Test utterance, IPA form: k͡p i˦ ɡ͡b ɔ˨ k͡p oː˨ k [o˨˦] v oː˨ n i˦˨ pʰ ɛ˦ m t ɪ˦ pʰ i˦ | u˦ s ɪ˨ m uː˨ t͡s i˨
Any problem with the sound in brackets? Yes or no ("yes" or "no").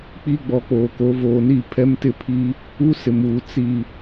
no